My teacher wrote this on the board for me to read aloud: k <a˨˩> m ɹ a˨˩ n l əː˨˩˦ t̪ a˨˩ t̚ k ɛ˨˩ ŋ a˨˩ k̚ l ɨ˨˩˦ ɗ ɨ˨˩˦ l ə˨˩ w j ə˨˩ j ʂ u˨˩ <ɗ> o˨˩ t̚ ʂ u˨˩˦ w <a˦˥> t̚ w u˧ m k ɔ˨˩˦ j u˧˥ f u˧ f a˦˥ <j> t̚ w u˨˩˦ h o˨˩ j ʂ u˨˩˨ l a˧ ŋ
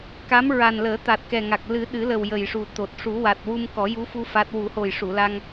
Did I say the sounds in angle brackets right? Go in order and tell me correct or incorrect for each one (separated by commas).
incorrect, incorrect, incorrect, incorrect